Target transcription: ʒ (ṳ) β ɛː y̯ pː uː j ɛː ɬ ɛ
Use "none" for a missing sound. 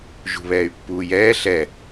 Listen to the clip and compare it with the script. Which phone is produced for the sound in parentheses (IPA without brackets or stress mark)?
ṳ